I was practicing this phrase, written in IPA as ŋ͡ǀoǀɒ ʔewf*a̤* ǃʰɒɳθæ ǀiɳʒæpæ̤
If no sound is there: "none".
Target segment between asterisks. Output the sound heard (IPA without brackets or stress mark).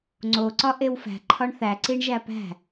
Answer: æ̤